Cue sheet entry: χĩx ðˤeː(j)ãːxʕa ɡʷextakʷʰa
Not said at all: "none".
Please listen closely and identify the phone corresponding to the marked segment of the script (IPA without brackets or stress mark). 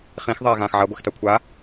ɣ